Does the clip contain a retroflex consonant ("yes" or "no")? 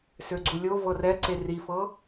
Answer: no